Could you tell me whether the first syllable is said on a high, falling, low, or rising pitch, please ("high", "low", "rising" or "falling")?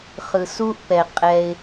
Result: low